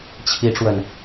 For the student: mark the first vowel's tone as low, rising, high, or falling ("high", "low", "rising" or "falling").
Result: rising